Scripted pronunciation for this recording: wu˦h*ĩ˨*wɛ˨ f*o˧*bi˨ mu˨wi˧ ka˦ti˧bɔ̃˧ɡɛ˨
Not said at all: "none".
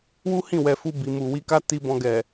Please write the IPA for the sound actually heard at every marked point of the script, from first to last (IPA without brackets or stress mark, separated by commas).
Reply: ĩ˦˨, u˧